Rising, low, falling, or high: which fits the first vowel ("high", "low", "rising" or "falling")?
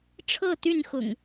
falling